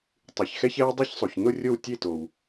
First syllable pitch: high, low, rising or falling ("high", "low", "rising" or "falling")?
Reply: low